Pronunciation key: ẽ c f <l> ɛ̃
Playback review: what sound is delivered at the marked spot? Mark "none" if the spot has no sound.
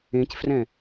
r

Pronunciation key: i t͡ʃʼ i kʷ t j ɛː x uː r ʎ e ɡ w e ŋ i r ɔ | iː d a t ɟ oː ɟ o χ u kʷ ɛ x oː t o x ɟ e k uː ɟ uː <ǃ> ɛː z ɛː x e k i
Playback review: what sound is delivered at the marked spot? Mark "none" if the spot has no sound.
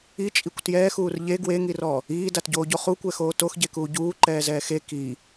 ǃ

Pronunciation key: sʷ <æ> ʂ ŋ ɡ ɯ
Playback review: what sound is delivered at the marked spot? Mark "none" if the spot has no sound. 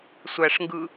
æ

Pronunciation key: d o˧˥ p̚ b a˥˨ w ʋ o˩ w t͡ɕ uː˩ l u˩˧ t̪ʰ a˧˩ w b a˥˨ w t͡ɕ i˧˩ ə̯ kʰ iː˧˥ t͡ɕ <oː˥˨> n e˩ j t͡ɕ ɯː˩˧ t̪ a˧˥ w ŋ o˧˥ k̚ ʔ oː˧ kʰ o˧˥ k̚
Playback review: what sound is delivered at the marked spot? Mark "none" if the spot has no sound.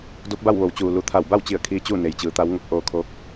uː˥˨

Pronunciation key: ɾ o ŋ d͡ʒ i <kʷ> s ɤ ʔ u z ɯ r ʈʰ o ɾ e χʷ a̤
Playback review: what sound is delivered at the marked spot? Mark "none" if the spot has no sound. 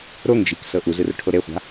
k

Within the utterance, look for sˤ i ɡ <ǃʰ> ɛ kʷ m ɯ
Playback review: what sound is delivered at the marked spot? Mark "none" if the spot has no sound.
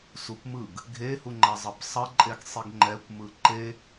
ŋ͡ǃ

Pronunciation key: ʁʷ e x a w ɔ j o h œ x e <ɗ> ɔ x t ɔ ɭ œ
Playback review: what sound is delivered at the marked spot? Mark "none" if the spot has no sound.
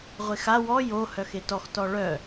t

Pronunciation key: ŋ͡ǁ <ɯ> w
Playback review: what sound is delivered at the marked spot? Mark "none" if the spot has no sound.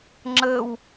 ə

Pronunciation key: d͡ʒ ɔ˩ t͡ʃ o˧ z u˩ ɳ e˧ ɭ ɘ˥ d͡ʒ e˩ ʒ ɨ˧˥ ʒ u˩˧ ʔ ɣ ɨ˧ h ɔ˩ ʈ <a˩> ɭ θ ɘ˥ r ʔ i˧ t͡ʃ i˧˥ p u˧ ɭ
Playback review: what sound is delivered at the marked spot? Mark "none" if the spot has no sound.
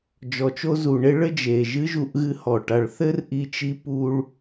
a˩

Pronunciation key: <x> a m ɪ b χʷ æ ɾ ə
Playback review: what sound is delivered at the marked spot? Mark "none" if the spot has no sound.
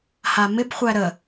h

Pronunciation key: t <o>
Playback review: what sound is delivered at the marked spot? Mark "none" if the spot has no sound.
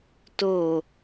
o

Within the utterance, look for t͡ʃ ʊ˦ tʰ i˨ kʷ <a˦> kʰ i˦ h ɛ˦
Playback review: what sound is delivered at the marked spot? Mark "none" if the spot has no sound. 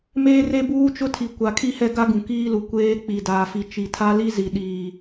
a˨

